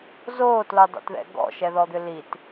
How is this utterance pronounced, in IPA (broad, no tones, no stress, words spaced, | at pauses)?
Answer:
zoːtlodˤo̰tðɛ̰ ɡɔ̰ʃɛðɔd̪ʏ lit